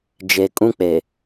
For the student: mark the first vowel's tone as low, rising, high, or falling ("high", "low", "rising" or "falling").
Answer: low